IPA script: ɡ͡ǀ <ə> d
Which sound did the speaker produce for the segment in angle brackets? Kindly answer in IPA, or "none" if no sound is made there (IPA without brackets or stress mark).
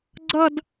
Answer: ʌ